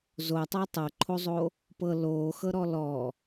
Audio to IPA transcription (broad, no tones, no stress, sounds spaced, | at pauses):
z o tˤ ɤ tˤ ɤ ǃʰ o zˤ o | p ɤ l oː x ɤ ɾ ɔ l ɔ